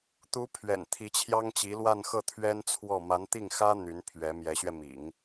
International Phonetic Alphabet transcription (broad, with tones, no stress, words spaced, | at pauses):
t̪u˧˥pʰɥɛ̰˨˩n t̪ʰi˧˥t͡ɕʰjɑ˥ŋt͡ɕi˧˥ lwa˥˧nxɤ˥˩t̪ʰɥɛ˥nt͡sʰwɔ˥˩ ma˧˥nt̪i˥˩ŋxä˥ n̪y˧˥n pʰɥɛ˧˥ mjɛ˧˥ɕɥɛ˧mḭ˨˩˦ŋ